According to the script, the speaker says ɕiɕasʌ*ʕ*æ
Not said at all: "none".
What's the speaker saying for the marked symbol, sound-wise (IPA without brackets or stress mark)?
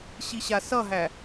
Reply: ɦ